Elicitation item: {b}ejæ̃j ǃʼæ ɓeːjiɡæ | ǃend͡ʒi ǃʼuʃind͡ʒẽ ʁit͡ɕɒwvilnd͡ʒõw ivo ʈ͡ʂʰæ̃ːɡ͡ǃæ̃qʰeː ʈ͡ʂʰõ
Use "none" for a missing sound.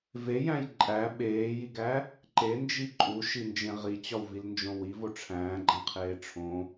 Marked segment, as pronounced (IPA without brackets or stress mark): v